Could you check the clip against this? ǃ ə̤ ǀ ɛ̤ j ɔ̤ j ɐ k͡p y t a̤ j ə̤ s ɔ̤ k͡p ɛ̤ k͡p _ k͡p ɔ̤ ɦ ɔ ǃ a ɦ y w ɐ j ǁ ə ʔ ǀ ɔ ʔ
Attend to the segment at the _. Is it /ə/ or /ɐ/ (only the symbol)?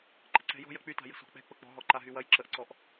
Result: ə